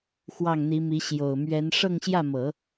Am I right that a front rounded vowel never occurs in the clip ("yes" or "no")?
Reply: yes